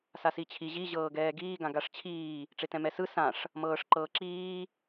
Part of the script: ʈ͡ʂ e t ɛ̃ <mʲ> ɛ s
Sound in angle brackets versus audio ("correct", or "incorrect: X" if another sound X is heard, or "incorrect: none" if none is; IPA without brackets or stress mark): incorrect: m